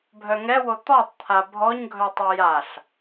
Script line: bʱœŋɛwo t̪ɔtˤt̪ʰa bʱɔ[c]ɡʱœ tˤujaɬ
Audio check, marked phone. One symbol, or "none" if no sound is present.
ɲ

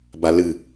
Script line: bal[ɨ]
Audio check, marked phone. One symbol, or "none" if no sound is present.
ɨ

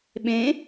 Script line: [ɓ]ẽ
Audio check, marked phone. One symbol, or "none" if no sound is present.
ɓ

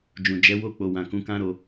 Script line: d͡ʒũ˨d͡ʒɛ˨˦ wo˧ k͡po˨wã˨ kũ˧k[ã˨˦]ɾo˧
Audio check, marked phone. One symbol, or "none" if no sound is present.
ã˦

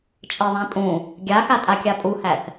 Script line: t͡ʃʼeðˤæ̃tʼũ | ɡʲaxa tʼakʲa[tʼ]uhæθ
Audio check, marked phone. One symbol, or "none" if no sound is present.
pʼ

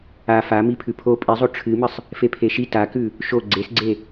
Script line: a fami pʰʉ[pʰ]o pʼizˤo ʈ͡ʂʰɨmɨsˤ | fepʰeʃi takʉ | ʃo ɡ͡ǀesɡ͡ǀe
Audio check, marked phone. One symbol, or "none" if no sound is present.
pʰ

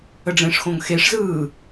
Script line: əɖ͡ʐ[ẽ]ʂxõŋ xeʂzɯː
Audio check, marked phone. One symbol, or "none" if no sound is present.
ẽ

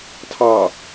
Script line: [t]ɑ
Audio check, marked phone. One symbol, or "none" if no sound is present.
tʰ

